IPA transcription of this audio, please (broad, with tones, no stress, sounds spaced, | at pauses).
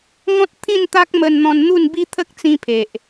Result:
ŋ ɔ̃˦ t̚ t̪ʰ ĩ˥˧ n t̪ a˦ k̚ m ə˧ n n̪ ɔ̃˧ n n̪ u˥˧ n b i˦ t̪ʰ ə˦ k̚ t͡s ĩ˧ pʰ e˨ ʔ